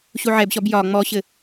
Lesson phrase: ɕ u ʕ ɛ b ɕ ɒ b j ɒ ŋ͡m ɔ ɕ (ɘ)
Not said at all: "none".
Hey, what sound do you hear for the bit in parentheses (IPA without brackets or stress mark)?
ɘ